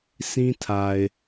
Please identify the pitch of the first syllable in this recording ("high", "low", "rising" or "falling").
high